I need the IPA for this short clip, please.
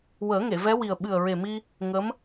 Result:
w əː˨˩˦ ŋ e˨˩˨ v ɛ˧˥ w i˨˩ ə̯ ɓ ɨ˨˩ ə̯ ɹ e˨˩ m i˧ | ŋ ə˧˥ m

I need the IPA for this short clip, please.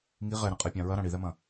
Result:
ŋ i ʁ ɛ ɾ ɐ̃ qʼ e pʲ ã ɹ ɐ ɾ ã ɽ i ð ɛ m ɐ̃

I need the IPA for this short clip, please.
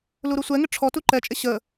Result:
l u ɾ u sʷ ɛ ŋ ɪ ʈ͡ʂʰ ɔ t u ǃ ɛ t͡ʃʼ ɪ ɕ ə

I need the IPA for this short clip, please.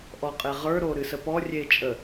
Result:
ʔ ɔ qʼ e ʁ ə˞ ɾ o ɾ ɨ s ə p ɔ rʲ e t͡ʃʼ ə

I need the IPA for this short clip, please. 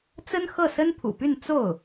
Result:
t͡s ə˥ n x ɤ˥˩ s ə˥ n pʰ ṵ˨˩ p y˥˧ n t͡s o˥˩ ʊ̯

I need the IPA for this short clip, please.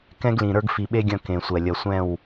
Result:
k ɛ̃˦ ɡ l ĩ˨ ɾ ə˞˦ ɡ f i˨ ɓ e˦ ɡʲ ɐ̃˦˨ k ẽ˨ sʷ ɛ˨ lʲ ɐ˨ sʷ ɛ̃˦˨ w

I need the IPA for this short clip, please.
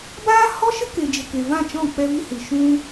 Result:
b aː˦ h ɔ˦ ʃ ə˦ k e˨ d͡ʒ ə˨ k e˨ v ã˦˨ t͡ʃ ɔ̃˦˨ k͡p ɛ˧ v i˧ h ɨ˨ ʃ ũ˦

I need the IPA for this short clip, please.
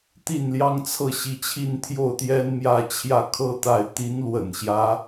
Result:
t̪ i˥˩ n l j ɑ˥ ŋ t͡sʰ ɤ˥˩ ɕ i˧˥ t͡ɕʰ i˥˧ n t̪ʰ j o˥˩ ʊ̯ t̪ j ɛ˥ n m j ä˥˧ t͡ɕʰ j ä˥˩ kʰ ɤ˥ t̪ a˥˩ ɪ̯ t̪ i˧˥ n l w ə̰˨˩ n ɕ j ä˦

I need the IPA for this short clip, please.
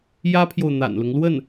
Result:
j ä˥ pʰ j o˨ ʊ̯ n̪ a̰˨˩ n l ʊ˦ ŋ l w ə˥˩ n

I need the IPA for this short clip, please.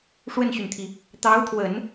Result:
ʂ w ə˥˩ n ɕ y˩ n t̪ʰ i˩ | t̪ ɑ˧˥ ʊ̯ t̪ʰ w ə˨˩˦ n

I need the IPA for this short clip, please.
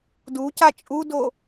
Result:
d u c a t͡ʃʼ u d o

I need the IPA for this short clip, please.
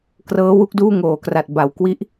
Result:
k r ɤː˦˥ w u˥˩ k̚ d uː˥˩ ŋ oː˩˦ k r a˨˩ t̚ b a˩˦ w k w i˦˥ ʔ

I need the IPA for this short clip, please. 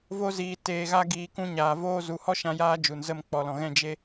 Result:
v o˧ z iː˨ t eː˨ ɣ a˧ ɡ iː˨ k ũ˧ ɲ aː˨ v oː˦ z u˨ h ɔ˦ ʃ ã˧ j aː˧ d͡ʒ u˨ n z ə˦˨ m k͡p ɔ˨ l ɔ̃˨ ɣ ɛ̃˦˨ d͡ʒ e˧

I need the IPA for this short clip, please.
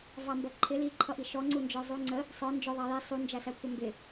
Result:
v ɑ m b ʌ ǃʰ ɪ l i ǃʰ ʌ ʔ i ʃ ɔ ŋ͡ǀ u n d͡ʒ ə˞ zˤ u ŋ͡ǀ ə | sˤ ə˞ n d͡ʒ ʊ ðˤ ɑ j i sˤ u n d͡ʒ æ s æ kʷʰ ʌ m b ɪ

